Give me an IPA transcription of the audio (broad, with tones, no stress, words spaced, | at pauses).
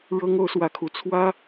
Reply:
ɻɤ˥ŋ o˧˥ʊ̯swä˧˥kʰu˨˩ t͡sʰwä˥